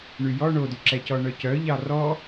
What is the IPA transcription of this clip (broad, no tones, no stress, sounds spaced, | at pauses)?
ɳ y j ɔ ɳ o d y ǁ ɛ c ɔ ɳ œ c œ ʎ ɑ r ɔ